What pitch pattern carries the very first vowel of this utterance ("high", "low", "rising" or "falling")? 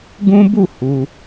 high